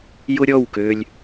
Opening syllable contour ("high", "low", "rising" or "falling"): high